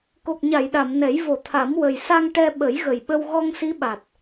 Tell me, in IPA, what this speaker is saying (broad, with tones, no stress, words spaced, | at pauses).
ko˨˩k̚ɲa˨˩˨jɗa˨˩˨m nɛ˨˩˦j vo˨˩˨t̪ʰa˨˩˦m wə˨˩j sa˧ŋ ʈɛ˧ ɓə˨˩˦jɣə˨˩jɓə˧w ɣɔ˧ŋsi˧˥ɓa˨˩t̚